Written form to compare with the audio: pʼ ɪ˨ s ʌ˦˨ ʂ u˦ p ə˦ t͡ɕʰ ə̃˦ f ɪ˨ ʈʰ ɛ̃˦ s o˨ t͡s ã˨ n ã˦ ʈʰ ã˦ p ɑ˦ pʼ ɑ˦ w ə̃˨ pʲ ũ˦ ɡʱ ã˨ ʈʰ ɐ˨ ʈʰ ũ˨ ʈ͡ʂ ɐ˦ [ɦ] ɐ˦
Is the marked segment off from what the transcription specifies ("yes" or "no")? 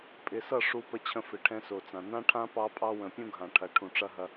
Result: no